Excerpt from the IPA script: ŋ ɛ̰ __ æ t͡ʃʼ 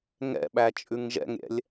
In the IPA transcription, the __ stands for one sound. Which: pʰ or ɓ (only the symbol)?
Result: ɓ